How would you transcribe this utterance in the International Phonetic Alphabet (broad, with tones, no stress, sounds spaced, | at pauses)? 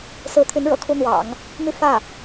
s ɹ̩˧˥ t̪ʰ y˧˥ n ɻ ɤ̰˨˩ kʰ u˥ n̪ w ɑ̰˨˩˦ ŋ | m y˥˧ f ä˥˩